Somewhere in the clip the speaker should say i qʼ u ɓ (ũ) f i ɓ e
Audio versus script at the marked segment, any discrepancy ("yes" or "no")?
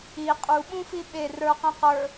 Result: no